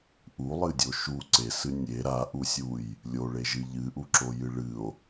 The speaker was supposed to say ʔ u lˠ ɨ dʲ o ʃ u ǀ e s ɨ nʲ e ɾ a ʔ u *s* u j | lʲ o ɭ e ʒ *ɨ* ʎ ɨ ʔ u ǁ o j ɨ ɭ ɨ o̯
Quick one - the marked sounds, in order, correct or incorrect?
incorrect: sʲ, correct

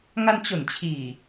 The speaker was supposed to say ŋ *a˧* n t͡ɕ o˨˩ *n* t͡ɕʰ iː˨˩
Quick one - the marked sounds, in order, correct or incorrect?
correct, correct

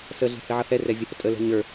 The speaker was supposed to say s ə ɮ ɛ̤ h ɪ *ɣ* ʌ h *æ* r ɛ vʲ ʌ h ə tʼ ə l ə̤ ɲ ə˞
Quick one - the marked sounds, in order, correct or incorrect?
incorrect: ʕ, incorrect: ɛ

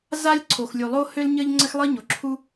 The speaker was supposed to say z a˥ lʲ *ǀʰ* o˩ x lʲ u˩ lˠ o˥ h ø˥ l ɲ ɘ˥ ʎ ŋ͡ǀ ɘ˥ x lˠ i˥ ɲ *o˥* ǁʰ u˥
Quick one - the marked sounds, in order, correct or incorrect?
correct, incorrect: o˩

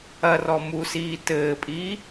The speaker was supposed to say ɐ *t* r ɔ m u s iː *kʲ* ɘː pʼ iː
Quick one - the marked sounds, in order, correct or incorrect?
incorrect: none, incorrect: t

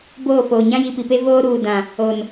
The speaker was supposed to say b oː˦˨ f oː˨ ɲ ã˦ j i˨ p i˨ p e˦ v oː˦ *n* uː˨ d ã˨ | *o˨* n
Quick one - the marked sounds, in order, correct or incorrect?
incorrect: ɾ, correct

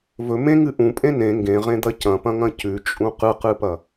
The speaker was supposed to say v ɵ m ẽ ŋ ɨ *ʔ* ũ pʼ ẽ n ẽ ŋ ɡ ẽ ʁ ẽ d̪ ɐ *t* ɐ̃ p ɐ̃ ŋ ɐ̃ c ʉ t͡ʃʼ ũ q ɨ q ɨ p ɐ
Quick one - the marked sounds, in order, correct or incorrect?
correct, incorrect: c

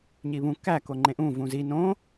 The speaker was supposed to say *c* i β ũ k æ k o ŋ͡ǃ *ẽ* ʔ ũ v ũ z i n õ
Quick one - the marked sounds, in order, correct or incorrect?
incorrect: ɲ, correct

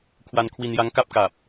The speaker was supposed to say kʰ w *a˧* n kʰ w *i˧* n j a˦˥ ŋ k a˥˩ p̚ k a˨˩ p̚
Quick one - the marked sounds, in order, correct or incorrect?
correct, correct

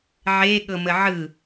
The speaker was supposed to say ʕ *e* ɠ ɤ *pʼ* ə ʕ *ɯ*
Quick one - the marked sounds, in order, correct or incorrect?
correct, incorrect: m, correct

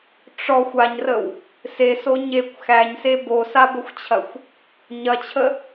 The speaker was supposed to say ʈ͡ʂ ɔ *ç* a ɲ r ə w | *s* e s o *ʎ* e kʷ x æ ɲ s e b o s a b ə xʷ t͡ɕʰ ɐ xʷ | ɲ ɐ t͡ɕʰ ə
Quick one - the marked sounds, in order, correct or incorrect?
incorrect: xʷ, correct, incorrect: ɲ

